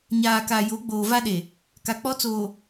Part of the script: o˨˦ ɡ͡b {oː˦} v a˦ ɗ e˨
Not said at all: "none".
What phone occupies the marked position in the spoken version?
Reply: oː˨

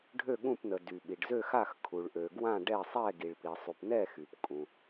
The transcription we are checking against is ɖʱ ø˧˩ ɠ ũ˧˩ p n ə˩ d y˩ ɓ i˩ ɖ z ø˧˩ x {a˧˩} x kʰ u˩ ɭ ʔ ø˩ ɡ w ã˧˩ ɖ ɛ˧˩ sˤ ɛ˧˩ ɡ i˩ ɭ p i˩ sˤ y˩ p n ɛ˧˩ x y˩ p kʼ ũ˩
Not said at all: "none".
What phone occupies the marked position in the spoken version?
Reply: a˧˩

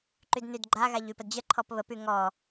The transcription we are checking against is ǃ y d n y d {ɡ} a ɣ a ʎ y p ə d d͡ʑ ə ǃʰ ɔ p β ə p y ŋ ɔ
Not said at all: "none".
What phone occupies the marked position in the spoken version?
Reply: ɡ͡ǃ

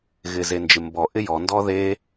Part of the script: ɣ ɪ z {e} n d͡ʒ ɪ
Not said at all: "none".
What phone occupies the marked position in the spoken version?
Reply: e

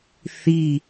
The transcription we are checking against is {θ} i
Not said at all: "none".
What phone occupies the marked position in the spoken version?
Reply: θ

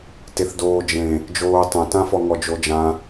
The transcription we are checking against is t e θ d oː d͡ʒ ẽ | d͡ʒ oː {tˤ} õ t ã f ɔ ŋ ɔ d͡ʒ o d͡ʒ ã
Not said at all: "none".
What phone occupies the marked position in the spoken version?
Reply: tˤ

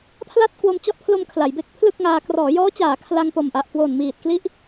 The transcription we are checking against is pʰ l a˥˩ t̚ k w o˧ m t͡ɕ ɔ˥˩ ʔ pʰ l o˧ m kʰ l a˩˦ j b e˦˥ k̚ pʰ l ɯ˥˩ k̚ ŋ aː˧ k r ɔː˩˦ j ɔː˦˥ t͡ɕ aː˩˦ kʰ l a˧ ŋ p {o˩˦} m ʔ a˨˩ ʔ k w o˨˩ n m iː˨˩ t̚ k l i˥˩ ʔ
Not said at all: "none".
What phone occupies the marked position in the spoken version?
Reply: o˨˩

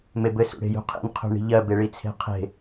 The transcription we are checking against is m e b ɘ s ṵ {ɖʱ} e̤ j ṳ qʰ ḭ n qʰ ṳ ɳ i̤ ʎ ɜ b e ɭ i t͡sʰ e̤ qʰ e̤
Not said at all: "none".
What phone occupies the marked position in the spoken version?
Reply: ɽ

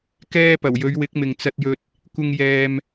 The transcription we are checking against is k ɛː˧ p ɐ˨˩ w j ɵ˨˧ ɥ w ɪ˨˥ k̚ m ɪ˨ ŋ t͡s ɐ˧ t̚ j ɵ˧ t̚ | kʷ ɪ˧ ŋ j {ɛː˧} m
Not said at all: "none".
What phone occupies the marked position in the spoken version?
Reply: ɛː˧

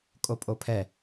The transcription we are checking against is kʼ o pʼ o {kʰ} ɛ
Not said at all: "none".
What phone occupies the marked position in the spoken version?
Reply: pʰ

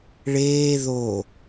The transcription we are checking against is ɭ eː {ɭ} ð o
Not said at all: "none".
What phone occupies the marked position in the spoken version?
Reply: none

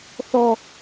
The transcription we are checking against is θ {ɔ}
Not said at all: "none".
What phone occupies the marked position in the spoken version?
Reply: ɔ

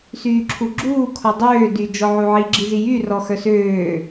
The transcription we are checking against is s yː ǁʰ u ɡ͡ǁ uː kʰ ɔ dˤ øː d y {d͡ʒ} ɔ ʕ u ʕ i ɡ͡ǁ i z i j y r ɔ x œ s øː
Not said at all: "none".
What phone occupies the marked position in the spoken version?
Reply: d͡ʒ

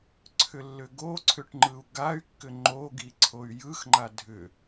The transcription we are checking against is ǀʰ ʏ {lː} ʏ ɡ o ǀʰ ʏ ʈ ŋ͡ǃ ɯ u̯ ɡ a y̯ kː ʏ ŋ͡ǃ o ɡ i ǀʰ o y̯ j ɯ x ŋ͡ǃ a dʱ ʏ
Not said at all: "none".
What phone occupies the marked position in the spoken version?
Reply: lː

